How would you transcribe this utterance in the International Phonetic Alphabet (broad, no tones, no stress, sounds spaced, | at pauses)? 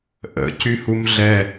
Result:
ʔ ə̰ c y h u m ɮ ɛ